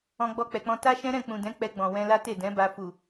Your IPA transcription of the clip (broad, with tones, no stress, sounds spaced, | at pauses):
ɔ̃˧ ɡ͡b ɔ˧ k͡p ɛ˨ k͡p ɔ̃˧ t a˦ ʃ ɛ̃˦ ɾ ɛ̃˦˨ k͡p ũ˨ d ɛ̃˨˦ k͡p ɛ˧ ɡ͡b ɔ̃˨ w ɛ̃˧ l a˦ t e˦˨ d ɛ̃˨˦ b a˧ f u˨